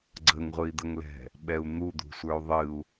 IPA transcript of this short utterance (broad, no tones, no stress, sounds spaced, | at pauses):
ɡ͡ǀ ə ŋ ʁʷ ɨ i̯ d̪ ə ŋ l ɛ̤ | ɓ ɛ u̯ n̪ u d̪ ṳ sʷ ə˞ u̯ ðˤ ɨ u̯